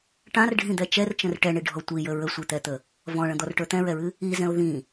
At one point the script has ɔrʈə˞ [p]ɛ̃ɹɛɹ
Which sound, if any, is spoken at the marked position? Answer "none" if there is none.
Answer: t̪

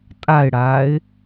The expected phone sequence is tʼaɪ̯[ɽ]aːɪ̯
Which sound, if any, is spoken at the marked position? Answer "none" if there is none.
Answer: ɽ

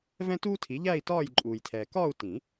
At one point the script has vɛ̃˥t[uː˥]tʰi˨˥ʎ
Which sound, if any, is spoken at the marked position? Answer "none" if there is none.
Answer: uː˥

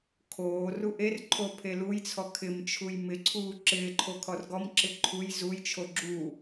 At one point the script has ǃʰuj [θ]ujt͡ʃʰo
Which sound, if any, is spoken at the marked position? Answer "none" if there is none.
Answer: z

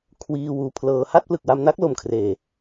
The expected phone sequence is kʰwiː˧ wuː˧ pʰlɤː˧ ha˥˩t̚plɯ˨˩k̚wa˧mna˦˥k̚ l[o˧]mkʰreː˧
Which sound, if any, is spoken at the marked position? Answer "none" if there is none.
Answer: o˧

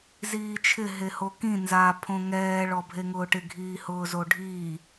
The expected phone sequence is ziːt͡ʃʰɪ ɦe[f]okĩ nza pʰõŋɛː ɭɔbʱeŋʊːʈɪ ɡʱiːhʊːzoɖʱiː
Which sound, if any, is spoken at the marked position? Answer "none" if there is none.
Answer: h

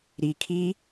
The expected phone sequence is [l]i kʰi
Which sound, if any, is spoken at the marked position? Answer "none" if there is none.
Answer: ɾ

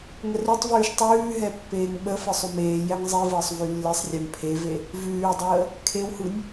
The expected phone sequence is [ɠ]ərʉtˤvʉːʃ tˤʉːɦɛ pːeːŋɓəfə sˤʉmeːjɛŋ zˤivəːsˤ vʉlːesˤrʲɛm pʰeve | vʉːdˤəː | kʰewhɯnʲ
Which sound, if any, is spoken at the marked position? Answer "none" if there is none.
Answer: ŋ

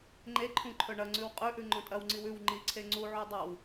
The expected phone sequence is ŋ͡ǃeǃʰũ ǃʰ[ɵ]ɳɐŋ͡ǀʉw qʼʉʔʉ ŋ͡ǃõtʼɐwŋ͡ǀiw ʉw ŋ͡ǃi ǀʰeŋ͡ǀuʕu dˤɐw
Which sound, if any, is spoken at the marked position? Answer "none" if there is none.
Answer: ɵ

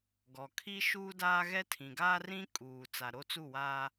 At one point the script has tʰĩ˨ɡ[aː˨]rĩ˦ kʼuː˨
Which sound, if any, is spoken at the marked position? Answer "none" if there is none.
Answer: aː˦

